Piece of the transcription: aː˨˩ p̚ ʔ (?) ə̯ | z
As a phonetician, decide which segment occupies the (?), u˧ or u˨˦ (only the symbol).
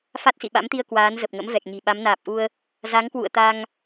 u˧